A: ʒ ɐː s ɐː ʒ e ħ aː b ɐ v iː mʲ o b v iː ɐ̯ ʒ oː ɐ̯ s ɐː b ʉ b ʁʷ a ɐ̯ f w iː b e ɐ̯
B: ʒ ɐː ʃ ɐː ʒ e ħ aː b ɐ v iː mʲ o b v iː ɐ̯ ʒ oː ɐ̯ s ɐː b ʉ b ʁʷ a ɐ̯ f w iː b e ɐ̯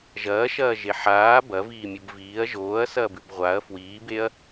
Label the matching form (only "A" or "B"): B